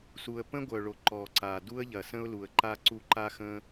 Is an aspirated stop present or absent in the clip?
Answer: absent